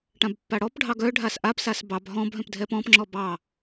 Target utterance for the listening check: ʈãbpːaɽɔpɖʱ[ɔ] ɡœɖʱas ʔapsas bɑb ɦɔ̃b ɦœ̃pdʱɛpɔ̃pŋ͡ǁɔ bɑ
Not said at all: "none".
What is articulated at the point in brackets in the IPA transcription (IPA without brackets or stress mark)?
ɑ